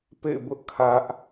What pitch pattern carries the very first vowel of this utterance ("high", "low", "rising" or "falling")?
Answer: falling